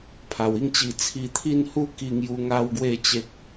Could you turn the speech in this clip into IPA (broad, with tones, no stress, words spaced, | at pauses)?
pʰa˨˩wi˥˧ŋt͡ɕi˧ t͡sʰi˧t̪ʰi˥˧n hu˦ki˧ŋju˧ ŋa˦wɡwe˥˧t͡ɕe˦k̚